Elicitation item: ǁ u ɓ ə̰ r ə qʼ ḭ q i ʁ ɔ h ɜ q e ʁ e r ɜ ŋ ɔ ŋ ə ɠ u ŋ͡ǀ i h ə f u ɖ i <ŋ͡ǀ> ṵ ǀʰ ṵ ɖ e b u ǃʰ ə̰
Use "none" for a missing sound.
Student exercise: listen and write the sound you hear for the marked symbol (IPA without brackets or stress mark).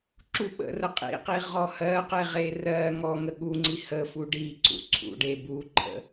ǀ